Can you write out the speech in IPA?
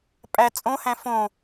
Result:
pʼ æ t͡sʼ õ h æ̃ f õ

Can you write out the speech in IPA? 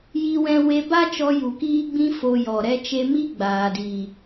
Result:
j i˦ w ɛ̃˦ w e˧ b a˦ t͡ʃ ɔ˧ j u˨ k iː˦ ɡ͡b ĩ˦ f o˧ j ɔ˨ ɾ ɛ˧ t͡ʃ e˧ m i˦ ɡ͡b aː˨ d iː˨

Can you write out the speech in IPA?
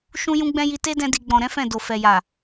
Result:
ʃ ũ˦ j ũ˦ ɡ͡b ɛ̃˦ j i˧ t e˦ d ɛ̃˧ d i˨ ɡ͡b ɔ̃˨ ɾ ɛ̃˨˦ f ɛ̃˦˨ d o˨ f ɛ˨ j a˨

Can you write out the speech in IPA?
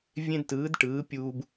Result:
vʲ ẽ˦ d t ɯː˨˦ d ʈ ɯː˨˦ pʲ uː˦ b

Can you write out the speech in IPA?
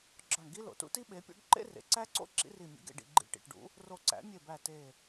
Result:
ɡ͡ǁ ɒ˧˩ ɳ ɡ i˥ l o̰˩ t ṵ˥ t i˥ ɓ e˩˥ pʲ o̰˥ ɖ ǃ ḛ˥ r ḛ˩ ǀ æ˥ ǀ o̰˥ ǁ ḭ˥ r i˧˩ mʲ ṵ˩˥ ɡ ḛ˩ ɖ ḭ˩ ɡ͡ǃ ḭ˧˩ ʈ ḭ˩ ʈ ɖ ṵ˩˥ | r o˧˩ ǀ æ̰˩˥ mʲ e˧˩ b æ˧˩ t e˧˩

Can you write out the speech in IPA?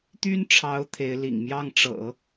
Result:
t̪ y˥ n ʈ͡ʂʰ ɑ˧˥ ʊ̯ t̪ʰ e˧˥ ɪ̯ l ḭ˨˩ ŋ m j ɑ˥˩ ŋ ʈ͡ʂ ɤ̰˨˩˦

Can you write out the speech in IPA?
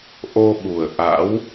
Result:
ʔ o˧ ɓ u˨˩ ə̯ ʔ a̰˧˥ w

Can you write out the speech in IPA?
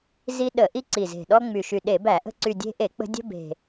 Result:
z i˦ ɗ ə˧˩˧ ʔ i˦ ǀ i˨˩ z e̤˨˩ ɗ ɔ˦ ŋ͡m y˨˩ ʃ y˨˩ ɗ e˧˩˧ b æ˧˩˧ ʔ ə̤˦ ǀ y˨˩ dʲ e̤˦ ʔ e˧˩˧ k͡p ə̤˦ dʲ ə̤˦ b e̤˨˩

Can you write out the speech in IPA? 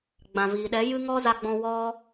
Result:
ɡ͡b ã˨ v iː˨ ɗ ɛ˨˦ j ɨ˦ ŋ ɔ˦ z a˧ ɡ͡b ɔ̃˧ w ɔ˦

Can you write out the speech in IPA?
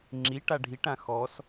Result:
ŋ͡ǁ i ʈ a ɖʱ i ʈ ã x ɔ s

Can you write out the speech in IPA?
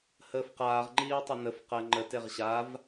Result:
h əː f q aː ʁ ŋ͡ǃ iː ʊ̯ tˤ ə n ə f q ɜ ŋ͡ǃ ə t e ʁ ɕ a v

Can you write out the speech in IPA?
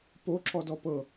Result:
p o ǁ ɔ d ɔ p ɤ

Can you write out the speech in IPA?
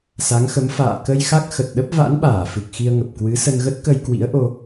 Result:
s a˨˦ ŋ x ə˨˦ m f a̰ː˧˨ k ə˧ j x a˦˥ k̚ x ə˨˩ t̚ ɗ ə˦˥ p̚ v a̰˧˥ n ɓ aː˧˩ f ɨ˨˩ k̚ x i˧ ə̯ ŋ ə˨˩ p̚ k w ɨ˨˦ s ə˧ n ɣ ə˦˥ t̚ k ə˧ j k w ḭ˧˥ ə̯ ʔ o˧

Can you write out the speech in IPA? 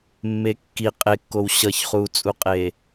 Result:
mː e kː i qʼ e kː o w ɕ ʌ ç χ uː t͡sʼ u qʼ e

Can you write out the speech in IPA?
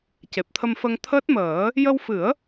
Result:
c e˨˩ p̚ t̪ʰ ə˧ m f ə˧ ŋ t̪ʰ əː˦˥ t̚ m əː˨˩˦ | j ə˧ w f ɨ˨˩˦ ə̯

